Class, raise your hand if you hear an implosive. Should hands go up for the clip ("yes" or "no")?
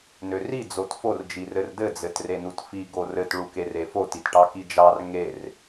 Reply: no